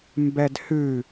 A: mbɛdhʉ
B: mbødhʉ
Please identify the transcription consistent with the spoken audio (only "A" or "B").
A